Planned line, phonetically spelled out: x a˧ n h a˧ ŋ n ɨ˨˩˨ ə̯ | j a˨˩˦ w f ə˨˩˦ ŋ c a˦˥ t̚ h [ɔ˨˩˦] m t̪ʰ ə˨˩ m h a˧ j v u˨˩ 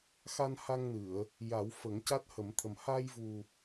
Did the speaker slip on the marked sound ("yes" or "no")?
yes